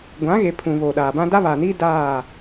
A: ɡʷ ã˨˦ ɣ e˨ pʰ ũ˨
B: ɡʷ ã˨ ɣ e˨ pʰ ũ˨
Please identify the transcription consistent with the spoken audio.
A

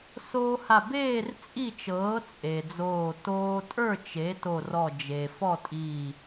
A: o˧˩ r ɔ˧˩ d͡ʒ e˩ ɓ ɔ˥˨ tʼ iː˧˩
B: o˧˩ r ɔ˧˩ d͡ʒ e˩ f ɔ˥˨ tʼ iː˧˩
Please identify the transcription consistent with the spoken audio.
B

